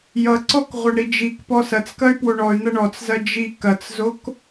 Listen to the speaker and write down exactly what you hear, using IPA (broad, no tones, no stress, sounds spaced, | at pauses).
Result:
j ʌ ǀ ɔ k ʁʷ ʌ ɳ ɾ i d͡ʒ i k p ɔ s ɐ t͡s k ɐ y̯ p w o ɳ ɔ y̯ n̪ ɐ ɳ ɔ t͡s z ɐ d͡ʒ i k ɐ t͡s z o k